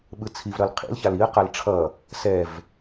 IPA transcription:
ɓ ɯ t͡sʰ i v ɾ ʌ l qʰ ḭ l ç a l i ə̯ q a l ʈ͡ʂʰ ʌ | s ɛ v

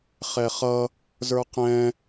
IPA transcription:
χ ɛ χ ʌ | z ə˞ q ɛ̃

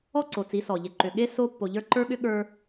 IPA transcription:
ɔ˦ ǀ o˨ t͡s i˨˦ s ɔ˨ ʎ e˨ ǃ ʏ˨ ɠ e˦ s o˦ pː o˨ ʎ ə˞˦˨ ǃ ə˞˦ ɠ ʏ˦ ɠ ə˞˦

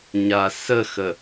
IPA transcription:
ɲ a s ə x ə

